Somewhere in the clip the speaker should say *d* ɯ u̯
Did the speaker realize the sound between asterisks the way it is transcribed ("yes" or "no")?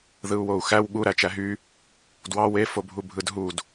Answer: no